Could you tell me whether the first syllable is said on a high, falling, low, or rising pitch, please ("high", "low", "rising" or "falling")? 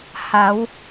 rising